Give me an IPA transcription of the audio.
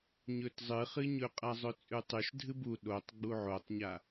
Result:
ɲ ɵ t zˤ ɨ χ ɨ ɲ ɵ qʼ a zˤ ɵ t͡sʼ ʉ tˤ ʉ ʃ dʱ ɨ b u ɗ o tˤ ɡ͡b u ʕ o tˤ ɲ a

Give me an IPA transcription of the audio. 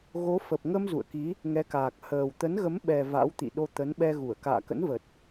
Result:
ɣ o˨˦ f ə˨˩ p̚ ŋ ə˧ m z ṵ˧˨ ə̯ k i˨˦ | ŋ ɛ˨˦ k aː˨˩ k̚ h əː˨˩ w t̪ ə˨˦ n ɣ ə˨˦ m ɓ ɛ˨˩ v a̰˧˥ w t̪ ḭ˧˨ ɗ o˧ t̪ ə˨˦ n ɓ ɛ˧ ɣ u˧˩ ə̯ k a̰ː˧˨ k ə̰˧˥ n v ə˨˩ t̚

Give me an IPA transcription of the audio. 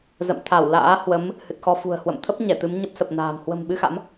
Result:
z ə̰˧˨ m t̪ʰ a˧˩ w l a̰ː˧˥ h w ə˨˦ m | h ɨ˨˩ t̚ x ɔ˧ f ṳ˨˩ ə̯ h w ə̰˧˨ m t̪ʰ ə˦˥ p̚ ɲ ɛ˧˩ t̪ ɨ˨˦ m ɲ ə˦˥ p̚ s ə˨˩ p̚ n a̤ː˨˩ m h w ə̤˨˩ m ɓ ɨ˧ x a̰˧˥ m

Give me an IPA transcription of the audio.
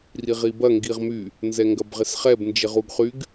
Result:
r i ʁ i b ɐ ŋ ɡ i ʁ m y | n z ɛ ŋ ɡ ɐ b ʁ ɪ s χ ɛ b n d͡ʒ ɪ ʁ u ɡ χ y ɡ

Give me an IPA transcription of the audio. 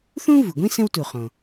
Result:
θ ũ˥ v u˩ ɡʷ ĩ˥ s ə̃˥ w t u˩ χ õ˩

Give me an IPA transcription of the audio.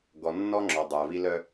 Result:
ɡ ɔ˨ nː ɔ˦ ŋ͡ǁ ɔ˨ dˤ ə˞˨ v i˦ l œ˦

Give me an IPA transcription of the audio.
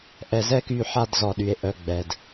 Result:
ʔ ɛ˧ z ɛ˦ k y˧ ħ a˧ d z ɔ˨ ɗ y˨ e̯ ʔ œ˨ ɡ͡b ɛ˨ d

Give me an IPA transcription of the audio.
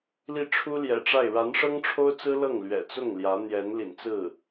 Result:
l i˥˩ ʈ͡ʂʰ u˥ l j ɛ̰˨˩ ʈ͡ʂ a˥˩ ɪ̯ ɻ a˧˥ n ʂ ɤ˥ ŋ ʈ͡ʂʰ o˥ ʊ̯ t͡s ɹ̩˥ l ɤ˥˩ ŋ l ɥ ɛ̰˨˩ t͡s ʊ˥˩ ŋ l j ä˧˥ n̪ j ɛ˧˥ n l ḭ˨˩ n t͡s ɹ̩˥˩

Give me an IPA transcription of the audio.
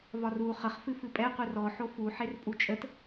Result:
v ɒ r u χ ə χ f ɨ f ɨ pʼ ɛ qʷ ɨ r ɔ ħ o f u ħ e r pʼ u t͡ʃʼ ə t

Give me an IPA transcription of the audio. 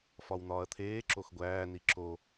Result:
f ɒ w n̪ ɒː ɐ̯ t̪ʰ eː ǁ o x ɡʷ æː n i ǁ o

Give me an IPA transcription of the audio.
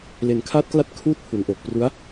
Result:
l e˨˩ n kʰ aː˦˥ t̚ k l a˦˥ t̚ kʰ uː˥˩ t̚ pʰ u˩˦ n ʔ o˨˩ k̚ p r u˦˥ a̯

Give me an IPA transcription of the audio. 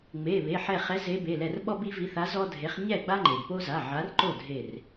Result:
ŋ͡m e˩˧˩ β e˩˧˩ ħ ɛ˧˩ χ ɛ˨˦ z e˨˦ b e˩˧˩ l ɛ˧˩ r ɓ ɔ˦ b i˦ v i˨˦ θ a˨˦ z ɔ˦ dʱ e˨˦ χ ɲ ɛ˥˩ ɡ͡b a˦ ŋ͡ǃ e˩ b p o˦ z a˩˧˩ ʕ a˨˦ r ǃ o˥˩ dʱ e˧˩ r

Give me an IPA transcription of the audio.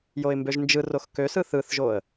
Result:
j o ɪ̯ m b ø ʒ n d͡ʒ ɯ r o x k ø s ɯ θ ɯ θ ʒ o ə̯

